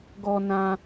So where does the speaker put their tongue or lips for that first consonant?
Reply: velum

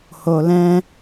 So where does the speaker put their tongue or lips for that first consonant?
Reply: throat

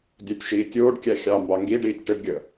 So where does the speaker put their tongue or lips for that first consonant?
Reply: tongue tip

